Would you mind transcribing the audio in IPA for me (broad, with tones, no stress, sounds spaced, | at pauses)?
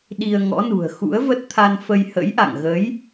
ɗ i˧ ə̯ ŋ ɔ̰˧˥ n ṳ˨˩ ə̯ x ṵ˧˥ ə̯ v ə˦˥ t̚ t̪ʰ a˧ n f ə˧ j h ə̰˧˥ j ʔ a̰˧˨ ŋ ɣ ə˨˦ j